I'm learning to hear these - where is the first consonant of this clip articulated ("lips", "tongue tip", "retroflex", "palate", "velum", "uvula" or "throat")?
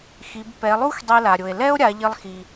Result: velum